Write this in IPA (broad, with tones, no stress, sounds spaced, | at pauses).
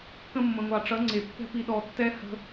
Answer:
k ə̃˧ mː ə̃˨ ŋʷ ɑ˨ ʈ͡ʂ ʌ˨˦ ŋ͡ǀ e˨ pː ɛ̤˧ p i˨ ɗ ɔ˨ tː ɛ˦ h ə̤˦